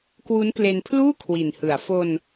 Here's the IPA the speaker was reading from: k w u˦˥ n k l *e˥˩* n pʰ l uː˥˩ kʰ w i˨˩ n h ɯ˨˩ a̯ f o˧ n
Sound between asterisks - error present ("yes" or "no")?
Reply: yes